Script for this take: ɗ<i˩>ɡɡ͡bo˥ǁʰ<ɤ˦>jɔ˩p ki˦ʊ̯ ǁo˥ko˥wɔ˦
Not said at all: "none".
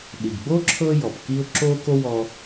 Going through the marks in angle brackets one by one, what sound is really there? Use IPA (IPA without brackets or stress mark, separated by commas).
i˩, ɤ˦